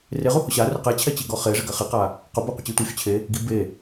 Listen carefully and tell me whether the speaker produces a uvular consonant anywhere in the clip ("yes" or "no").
yes